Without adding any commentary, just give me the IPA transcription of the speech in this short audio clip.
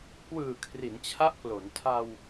kwɯː˨˩ kʰri˩˦nt͡ɕʰa˦˥ʔklo˩˦n tʰa˧w

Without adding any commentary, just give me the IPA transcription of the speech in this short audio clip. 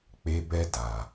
k͡pe˦bɛ˦ da˨

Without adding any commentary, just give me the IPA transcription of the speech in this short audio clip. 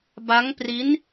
ba˦˥ŋpri˦˥n

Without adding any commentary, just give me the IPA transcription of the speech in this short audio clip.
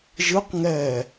ʒɯqŋɛː

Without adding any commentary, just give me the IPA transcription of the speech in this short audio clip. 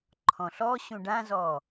ǃʰɔ̃ɬɔɕũ ɖãzɔ

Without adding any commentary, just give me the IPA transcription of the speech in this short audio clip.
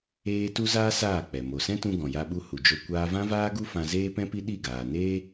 eː˦ tu˦zaː˦ saː˦˨k͡pɛ˨ mo˨sɛ̃˦tũ˧ ɡɔ̃˨ja˧ɓu˧ hu˨d͡ʒo˧ kʷaː˧vã˦vaː˦ɡu˦ fã˧zeː˦pɛ̃˦pi˦ ɗi˦˨ɡaː˨ neː˦

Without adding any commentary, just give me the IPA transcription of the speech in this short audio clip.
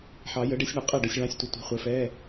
ħɑ˨˩˦jə˨˥ɖe˨˥sʲɳə˨˥ qʼɛ˥˩ɖə˧sʲ ɭɑ̃˧˥˧sʲtʷə˧tʷi̤˨˥ χʷɘ˨˥fɛ˧˥˧

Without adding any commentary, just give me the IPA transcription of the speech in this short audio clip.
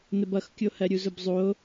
nəbʌxkʲohɜ ɾʲuzʊbzˤo

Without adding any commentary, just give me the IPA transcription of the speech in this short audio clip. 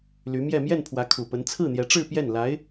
ly˧˥mjɛ˥˧ mjɛ˥˩npʰwä˧˥kʰu˨˩pə˧˥n t͡sʰɹ̩˥˩n̪jɛ˧˥ʈ͡ʂɻ̩˥˧ pjɛ˥˩nla˧˥ɪ̯

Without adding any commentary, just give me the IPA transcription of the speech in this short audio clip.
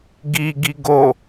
ɡiɡi ɡo

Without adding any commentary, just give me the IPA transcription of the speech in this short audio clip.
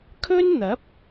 kʰɵ˥nn̪ɐ˨˥p̚

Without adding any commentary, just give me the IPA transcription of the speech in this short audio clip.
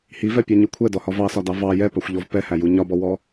hivɛpʲɑɲu kʷʰɛdɔhɒ vɑsɒdɑ vɑ jɛpɑxʷʎɔv pɛhæju ɲɒbɔwɔ

